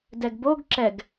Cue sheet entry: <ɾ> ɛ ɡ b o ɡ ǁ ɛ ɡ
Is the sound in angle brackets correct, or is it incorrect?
incorrect: d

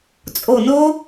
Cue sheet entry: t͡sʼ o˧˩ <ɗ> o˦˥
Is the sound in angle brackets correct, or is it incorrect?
incorrect: n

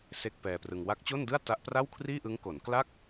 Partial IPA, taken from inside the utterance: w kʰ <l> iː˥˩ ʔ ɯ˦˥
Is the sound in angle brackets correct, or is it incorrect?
incorrect: r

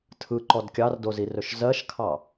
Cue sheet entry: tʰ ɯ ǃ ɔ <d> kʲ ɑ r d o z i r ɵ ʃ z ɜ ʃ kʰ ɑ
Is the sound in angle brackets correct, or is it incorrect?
correct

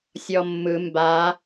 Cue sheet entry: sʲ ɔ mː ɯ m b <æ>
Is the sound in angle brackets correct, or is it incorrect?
incorrect: a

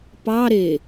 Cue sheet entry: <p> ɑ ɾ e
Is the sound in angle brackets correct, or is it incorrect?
correct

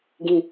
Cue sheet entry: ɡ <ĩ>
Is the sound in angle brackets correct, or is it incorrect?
correct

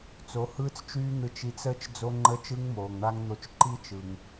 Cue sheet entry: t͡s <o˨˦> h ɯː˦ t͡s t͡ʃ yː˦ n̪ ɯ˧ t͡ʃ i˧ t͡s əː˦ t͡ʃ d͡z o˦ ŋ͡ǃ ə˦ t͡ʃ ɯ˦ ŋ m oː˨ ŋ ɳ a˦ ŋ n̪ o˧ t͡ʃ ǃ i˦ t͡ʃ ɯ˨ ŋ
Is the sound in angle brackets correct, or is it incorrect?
correct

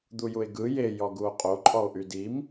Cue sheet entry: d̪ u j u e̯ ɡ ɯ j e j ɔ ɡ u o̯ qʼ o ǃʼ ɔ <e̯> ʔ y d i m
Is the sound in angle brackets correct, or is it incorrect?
incorrect: o̯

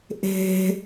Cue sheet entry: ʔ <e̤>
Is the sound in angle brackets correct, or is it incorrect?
correct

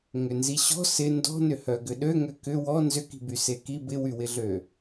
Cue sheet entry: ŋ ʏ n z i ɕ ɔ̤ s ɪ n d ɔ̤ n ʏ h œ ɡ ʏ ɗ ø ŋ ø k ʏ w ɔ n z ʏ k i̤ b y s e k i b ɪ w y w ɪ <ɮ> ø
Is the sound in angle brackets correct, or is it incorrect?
correct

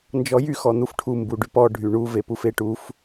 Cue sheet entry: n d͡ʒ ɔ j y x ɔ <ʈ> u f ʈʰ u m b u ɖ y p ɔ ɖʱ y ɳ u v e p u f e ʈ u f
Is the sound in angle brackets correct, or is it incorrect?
incorrect: n̪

